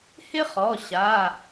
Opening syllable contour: high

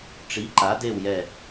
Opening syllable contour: rising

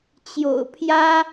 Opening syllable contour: low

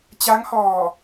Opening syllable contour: rising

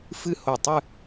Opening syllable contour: high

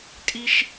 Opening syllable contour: high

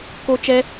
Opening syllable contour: high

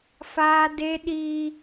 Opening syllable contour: high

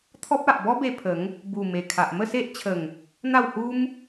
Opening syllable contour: high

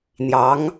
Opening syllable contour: rising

